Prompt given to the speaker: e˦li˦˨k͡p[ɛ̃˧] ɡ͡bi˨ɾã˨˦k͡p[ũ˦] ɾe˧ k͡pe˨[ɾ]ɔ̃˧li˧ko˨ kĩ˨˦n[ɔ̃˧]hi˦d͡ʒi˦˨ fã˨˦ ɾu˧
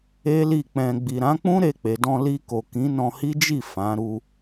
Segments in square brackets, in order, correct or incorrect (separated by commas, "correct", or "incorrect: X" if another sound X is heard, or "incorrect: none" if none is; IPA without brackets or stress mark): correct, correct, incorrect: d, correct